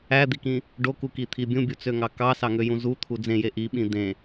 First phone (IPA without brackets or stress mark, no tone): æ